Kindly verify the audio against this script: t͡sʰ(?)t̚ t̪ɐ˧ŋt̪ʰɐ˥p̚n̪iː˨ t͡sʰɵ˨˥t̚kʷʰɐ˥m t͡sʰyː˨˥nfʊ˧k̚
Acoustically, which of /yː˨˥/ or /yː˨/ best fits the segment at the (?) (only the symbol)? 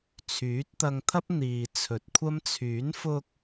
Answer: yː˨˥